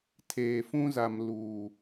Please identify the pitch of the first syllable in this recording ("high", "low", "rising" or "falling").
low